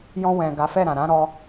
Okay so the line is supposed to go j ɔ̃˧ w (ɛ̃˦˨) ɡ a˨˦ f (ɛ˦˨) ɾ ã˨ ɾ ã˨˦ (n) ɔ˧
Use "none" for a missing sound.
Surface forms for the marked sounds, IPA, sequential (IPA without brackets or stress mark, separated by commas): ɛ̃˨, ɛ˦˨, ɾ